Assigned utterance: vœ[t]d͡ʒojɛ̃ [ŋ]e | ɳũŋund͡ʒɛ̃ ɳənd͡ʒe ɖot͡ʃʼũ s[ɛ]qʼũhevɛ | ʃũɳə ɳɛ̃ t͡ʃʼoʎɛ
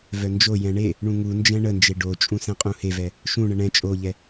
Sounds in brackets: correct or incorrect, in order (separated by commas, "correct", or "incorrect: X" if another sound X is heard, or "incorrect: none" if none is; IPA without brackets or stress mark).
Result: incorrect: n, incorrect: ɳ, incorrect: ɛ̃